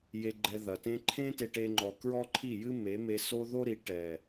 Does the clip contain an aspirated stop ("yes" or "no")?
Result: yes